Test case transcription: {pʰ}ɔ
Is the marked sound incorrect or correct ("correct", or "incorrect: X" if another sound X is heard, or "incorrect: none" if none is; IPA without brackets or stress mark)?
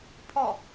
correct